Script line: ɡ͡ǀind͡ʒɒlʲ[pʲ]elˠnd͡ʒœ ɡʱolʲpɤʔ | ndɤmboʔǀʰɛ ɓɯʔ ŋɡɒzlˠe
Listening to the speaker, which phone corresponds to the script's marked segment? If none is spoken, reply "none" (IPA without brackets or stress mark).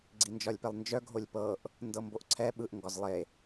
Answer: p